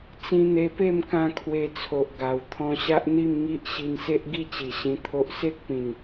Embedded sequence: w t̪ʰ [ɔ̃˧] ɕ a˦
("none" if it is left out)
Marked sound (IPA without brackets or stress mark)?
ɔ̃˧